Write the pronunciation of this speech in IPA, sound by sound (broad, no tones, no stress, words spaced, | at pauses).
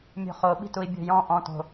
mʲo̤χo ɓi̤tui̯bʲo̤jɔ̃ ʔɔ̃t o̤